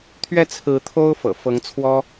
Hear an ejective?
no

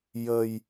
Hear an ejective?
no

